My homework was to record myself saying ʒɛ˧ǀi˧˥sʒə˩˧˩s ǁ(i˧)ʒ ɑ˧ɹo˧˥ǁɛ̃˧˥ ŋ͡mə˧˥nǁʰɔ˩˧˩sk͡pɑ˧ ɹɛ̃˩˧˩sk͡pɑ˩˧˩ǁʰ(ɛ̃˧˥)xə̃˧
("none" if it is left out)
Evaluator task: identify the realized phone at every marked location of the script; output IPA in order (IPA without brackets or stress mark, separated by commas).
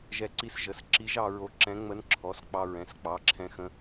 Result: i˧˥, ɛ̃˧